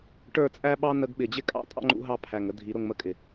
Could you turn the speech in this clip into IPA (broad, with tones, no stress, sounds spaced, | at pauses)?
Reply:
ʈ ə˞˦˨ t͡sʼ æ˦ ɓ ɑ˦ n ə˧ ɡ ɓ ɪ˨ d͡ʑ ɪ˦ kʼ ɑ̰˨˦ tʼ ɑ̰˦ ŋ͡ǃ ṵ˧ ɦ ɑ˦ pʰ æ˨ ŋ ə˦ dʱ i˨˦ ɾ ʊ˧ ŋ m ə˦˨ kʼ ɪ˨